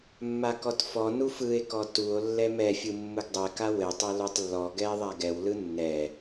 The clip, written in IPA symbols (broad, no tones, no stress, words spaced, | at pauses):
mːakɔtfɔ nufɯe̯kɔ tuo̯ lːɛmɛfʲɯ mːɯɡdˤɛka wɘ tˤɛlutˤlːɔ ɡɛe̯ðˤaɡɛwlɯ nːɛ